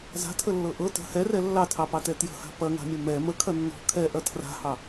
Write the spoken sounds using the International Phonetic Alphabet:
za̤tʰəlːɤ ʔɤ tə̤ hɛrɛ lːɑtʰɑpɑtɛ tjə̤ha̤ pɐŋa̤mʲɐ mɛ məkʰɐ nːɔ̤ kʰɛʔɐ tʰra̤hɑ

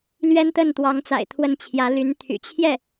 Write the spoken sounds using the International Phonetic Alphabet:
lɥɛ˥nt̪ə˥˩nt̪wɑ˧˥ŋt͡sa̰˨˩ɪ̯ t̪ʰwə˥nt͡ɕʰjä˧˥ ly˧˥nt̪ʰy̰˨˩ t͡ɕʰjɛ˥˩

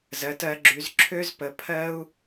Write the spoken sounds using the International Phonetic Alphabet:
zɜ˩˧tɜ˩˧ɡ͡ǁy˩˧z ǁʰø˥zpə˩˧pʰɜ˥u̯

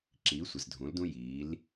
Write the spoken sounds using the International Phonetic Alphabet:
ǁiː˩˧sʷɪ˩zdʱũ˩˧ldũ˧ jiː˩˧l

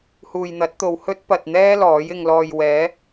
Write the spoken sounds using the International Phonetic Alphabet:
huː˨jn̪ɐ˨˥t̚t̪o˨w hɵ˥t̚ pɐ˨t̚n̪ɛː˥ lɔː˨˥jɪ˧ŋ lɔː˨jwɛː˨˥

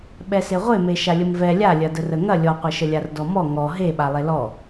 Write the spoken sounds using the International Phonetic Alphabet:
ɓɛseʁʷeme ʃalʲəmvɛ lʲalʲɐ dərəŋɐ lʲɔqʷɐʃəlʲar dɔmɔ ŋɔ ɦeɓa lˠelɔ

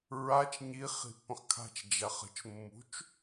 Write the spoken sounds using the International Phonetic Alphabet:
ɹat͡ʃ ɲi χi̤pːə̃χkʰa̤t͡ʃ d͡ʒaχə̤t͡ʃ mːṳt͡ʃ

